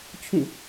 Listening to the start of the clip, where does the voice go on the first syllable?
falling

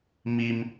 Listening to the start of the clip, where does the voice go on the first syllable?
high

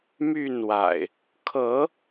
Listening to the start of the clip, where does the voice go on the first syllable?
falling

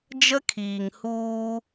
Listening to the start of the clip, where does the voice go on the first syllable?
high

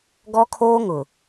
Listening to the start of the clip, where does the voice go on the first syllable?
high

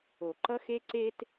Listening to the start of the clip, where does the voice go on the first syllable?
low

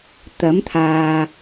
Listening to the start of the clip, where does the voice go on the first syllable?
rising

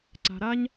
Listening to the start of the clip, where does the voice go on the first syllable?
low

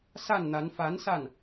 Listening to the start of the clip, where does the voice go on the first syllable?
falling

